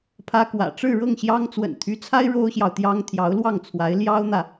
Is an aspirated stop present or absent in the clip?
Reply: present